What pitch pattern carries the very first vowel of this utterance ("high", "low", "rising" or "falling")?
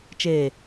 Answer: low